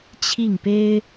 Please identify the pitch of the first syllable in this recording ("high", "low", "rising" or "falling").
falling